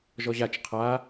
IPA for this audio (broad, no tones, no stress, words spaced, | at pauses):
ʒɔʑat͡ʃ qʰa